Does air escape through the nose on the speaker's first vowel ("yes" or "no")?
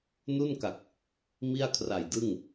no